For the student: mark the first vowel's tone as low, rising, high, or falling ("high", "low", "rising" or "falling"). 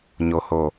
low